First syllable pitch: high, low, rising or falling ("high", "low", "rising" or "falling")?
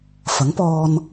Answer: rising